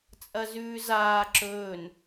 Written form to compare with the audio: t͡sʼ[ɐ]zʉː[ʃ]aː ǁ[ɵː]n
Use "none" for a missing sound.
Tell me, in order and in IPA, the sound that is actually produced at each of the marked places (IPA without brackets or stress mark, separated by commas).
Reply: ɐ, z, ɵː